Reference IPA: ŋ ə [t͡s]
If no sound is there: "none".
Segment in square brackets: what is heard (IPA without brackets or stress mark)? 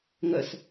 s